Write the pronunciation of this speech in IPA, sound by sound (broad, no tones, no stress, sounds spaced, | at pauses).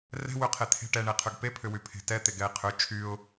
r ɛ̤ w ʏ qʰ e t̪ʰ e̤ ʈ ɛ ɳ e qʰ ʏ ɡ p e pʰ ʏ w y pʰ e̤ t ɛ t̪ e ɡ ɛ ɪ̯ qʰ ʏ t͡ʃʰ y ʊ̯